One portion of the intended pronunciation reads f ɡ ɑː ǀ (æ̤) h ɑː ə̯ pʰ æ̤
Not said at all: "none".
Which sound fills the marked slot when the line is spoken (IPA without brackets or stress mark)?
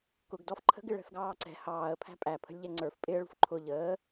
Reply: ɛ̤